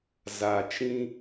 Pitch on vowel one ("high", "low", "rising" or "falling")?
low